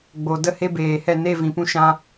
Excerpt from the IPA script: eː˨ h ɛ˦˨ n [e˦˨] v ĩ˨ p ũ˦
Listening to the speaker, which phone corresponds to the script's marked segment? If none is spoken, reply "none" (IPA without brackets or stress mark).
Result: e˦˨